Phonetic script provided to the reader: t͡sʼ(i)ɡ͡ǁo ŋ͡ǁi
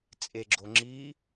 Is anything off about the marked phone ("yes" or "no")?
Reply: yes